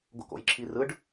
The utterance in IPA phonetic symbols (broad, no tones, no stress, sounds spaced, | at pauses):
ɡ o̰ k o̰ j ǁʰ i r ɯ ɖ